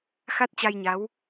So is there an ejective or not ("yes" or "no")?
no